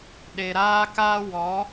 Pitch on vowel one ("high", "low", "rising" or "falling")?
low